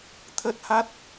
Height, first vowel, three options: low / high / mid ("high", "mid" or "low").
mid